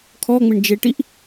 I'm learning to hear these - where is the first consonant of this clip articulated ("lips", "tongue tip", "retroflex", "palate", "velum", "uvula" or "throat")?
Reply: velum